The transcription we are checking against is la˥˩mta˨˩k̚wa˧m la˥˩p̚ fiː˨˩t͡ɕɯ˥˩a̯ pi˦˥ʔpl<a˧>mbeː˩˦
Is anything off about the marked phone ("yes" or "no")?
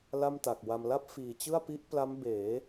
yes